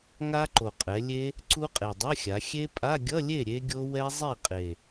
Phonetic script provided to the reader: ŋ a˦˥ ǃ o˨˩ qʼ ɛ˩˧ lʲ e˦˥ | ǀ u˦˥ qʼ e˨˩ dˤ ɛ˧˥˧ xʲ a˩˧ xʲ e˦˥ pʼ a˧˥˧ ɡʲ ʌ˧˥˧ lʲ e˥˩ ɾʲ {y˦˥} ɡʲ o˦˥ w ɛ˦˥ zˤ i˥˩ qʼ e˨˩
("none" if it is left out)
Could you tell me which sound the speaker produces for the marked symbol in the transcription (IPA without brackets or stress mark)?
e˦˥